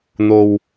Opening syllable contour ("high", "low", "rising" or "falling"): low